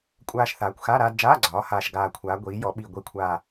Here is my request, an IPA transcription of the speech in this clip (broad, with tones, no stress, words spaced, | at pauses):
kʷʼaː˧ʃ θaː˩˧kʷxa˧˥˧ ɾaː˧dd͡ʒaː˧˥˧ɡ͡ǀɒː˩˧ haː˨˩ʃɡaː˨˩kʷʰaː˩˧ ɡʷiː˩˧jɔ˩˧ɓi˨˩ ɡʷi˨˩kʷʰa˨˩